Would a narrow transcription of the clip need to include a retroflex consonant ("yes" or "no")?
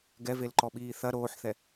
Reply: no